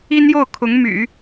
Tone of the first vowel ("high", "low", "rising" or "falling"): high